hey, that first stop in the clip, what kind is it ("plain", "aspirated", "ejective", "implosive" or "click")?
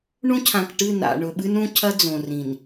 aspirated